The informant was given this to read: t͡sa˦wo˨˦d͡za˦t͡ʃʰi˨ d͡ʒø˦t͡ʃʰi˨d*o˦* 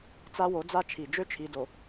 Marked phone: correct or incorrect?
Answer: incorrect